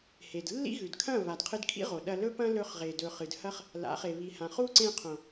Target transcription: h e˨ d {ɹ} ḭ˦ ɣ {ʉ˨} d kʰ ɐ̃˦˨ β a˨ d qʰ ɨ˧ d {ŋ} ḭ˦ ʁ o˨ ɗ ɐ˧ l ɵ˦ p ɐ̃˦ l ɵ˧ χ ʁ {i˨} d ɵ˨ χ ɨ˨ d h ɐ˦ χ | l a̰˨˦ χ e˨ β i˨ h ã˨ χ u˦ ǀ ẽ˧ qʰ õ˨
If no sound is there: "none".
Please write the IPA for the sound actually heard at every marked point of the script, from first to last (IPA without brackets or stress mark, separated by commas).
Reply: lː, ʉ˨, kʰ, e˨